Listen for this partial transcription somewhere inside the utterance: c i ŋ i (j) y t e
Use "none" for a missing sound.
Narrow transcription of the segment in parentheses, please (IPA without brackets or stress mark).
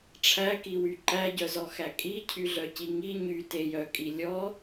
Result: ɲ